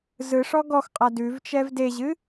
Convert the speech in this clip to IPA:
z ɯ ʂ ɔ ɡ ɔ x qʼ a d ʉ v t͡ʃ ɛ v d e ʑ ɨ

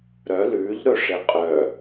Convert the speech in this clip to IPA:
ɾ œ l ʉː ʎ ɾ ɵ ʂ e qʼ œ

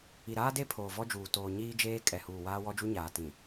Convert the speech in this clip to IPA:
i˨ ɾ aː˦ d e˦ pʰ oː˨ v ɔ˦ d͡ʒ uː˨ t oː˨ ɲ iː˦ d͡ʒ eː˦ kʼ ɛ˨ h uː˨ w aː˦ w ɔ˦ d͡ʒ u˦ ɲ aː˨ t ĩ˨

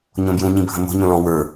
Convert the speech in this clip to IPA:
ɲ õ b j ũ ɲ ĩ bʱ ə̃ m o̤ ɲ õ l ɔ̃ w ə˞

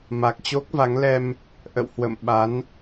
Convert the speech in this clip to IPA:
m a˨˩ k̚ t͡ɕ o˦˥ k̚ v a˨˦ ŋ l ɛ˧ m | ʔ ə̰˧˨ w h w ə̰˧˨ m ɓ a˨˦ n

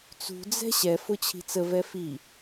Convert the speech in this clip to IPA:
t͡s ṳ d͡z ɛ̤ ɕ ɛ f ʊ t͡ɕʰ i̤ t͡s ə v ɛ f i

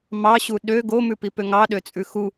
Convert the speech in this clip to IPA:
m ɑ ɕ u ɗ ø ɡ o m ʉ p i p ø ŋ ɑ ɗ ø t͡sʼ ʉ x u

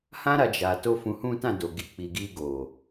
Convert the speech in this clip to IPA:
h ã˦ ɾ a˧ d͡ʒ a˨ t o˧ f ũ˧ h ũ˦ t ã˦˨ d o˨ ɡ i˨ k͡p i˨ ɡ i˧ ɡ o˨

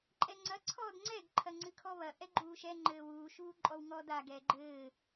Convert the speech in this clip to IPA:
ǃʼ ɛ ŋ͡ǀ ɐ ǀʰ ɔː d ŋ͡ǀ ɛ ɡ ǃʰ ɐ ŋ͡ǀ ɨ kʰ ɔ β ɐ ʔ ɛ ɡ͡ǃ uː ʃ ɛ ŋ͡ǃ ɘː w uː ʃ uː ǃʼ ɔ w ŋ ɔ d a ɡ ɛ ɡ͡ǃ ɘː

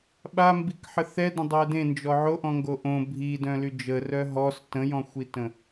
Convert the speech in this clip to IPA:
ɓ a m b i k ħ ə θ ɛ d ə̃ dˤ œ d ẽ n d͡ʒ ɔ ʕ o ʔ ɔ̃ ŋ ɡ o ʔ õ bʱ i d œ̃ l y d͡ʒ ə r œ ɦ ɔ s t ə̃ j ɔ̃ xʷ i t ə̃

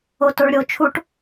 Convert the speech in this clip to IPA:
o t o ɭ ɾʲ o t͡ʃʰ u ʈ

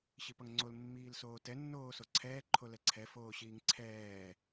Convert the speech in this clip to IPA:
ɕ i p ʌ ŋ ŋ͡ǀ o l mː iː l s oː t ɛ nː oː s o ǀʰ ɛː ǃʰ o l ɛ ǀʰ ɛ f oː ɕ iː ŋ ǀʰ ɛː

